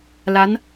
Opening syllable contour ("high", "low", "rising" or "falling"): rising